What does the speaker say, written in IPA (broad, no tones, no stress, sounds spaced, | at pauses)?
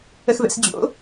ə x v ɛ̰ s d͡ʑ o̰